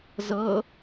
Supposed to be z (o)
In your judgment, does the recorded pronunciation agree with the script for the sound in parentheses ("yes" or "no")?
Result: no